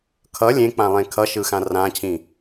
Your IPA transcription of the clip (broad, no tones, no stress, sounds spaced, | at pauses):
kʰ ʌ lʲ ẽ k͡p ã lˠ ẽ kʰ ʌ ʃ ɯ x ã r ã cʰ ĩ